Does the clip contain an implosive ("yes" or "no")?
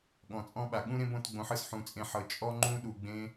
yes